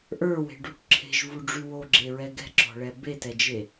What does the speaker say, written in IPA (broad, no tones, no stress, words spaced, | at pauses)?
ʔə˞we̤ɖuʈ ǁʰe̤ʒvuɖ͡ʐy woɡ͡ǁeɹɛ ɡɛ̤ǁɔ̤ɭɛ betɛd͡ʒe